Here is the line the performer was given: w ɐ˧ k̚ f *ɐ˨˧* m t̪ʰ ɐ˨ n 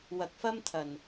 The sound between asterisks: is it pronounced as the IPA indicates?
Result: no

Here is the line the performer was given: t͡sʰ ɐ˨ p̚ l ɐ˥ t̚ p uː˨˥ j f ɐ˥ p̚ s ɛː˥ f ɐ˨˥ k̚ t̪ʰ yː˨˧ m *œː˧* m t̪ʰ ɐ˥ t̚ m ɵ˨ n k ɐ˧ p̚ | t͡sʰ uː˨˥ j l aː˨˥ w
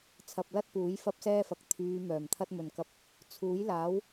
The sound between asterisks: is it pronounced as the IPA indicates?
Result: no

